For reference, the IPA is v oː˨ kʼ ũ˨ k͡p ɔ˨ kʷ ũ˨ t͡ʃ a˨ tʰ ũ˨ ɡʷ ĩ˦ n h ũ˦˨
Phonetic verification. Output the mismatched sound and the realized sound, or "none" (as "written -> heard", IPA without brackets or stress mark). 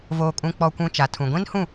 none